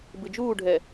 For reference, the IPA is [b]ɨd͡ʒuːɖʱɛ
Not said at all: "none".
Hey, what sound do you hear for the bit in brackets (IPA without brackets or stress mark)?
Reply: b